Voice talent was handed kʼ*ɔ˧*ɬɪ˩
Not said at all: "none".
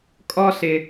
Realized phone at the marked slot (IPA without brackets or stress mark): ɔ˧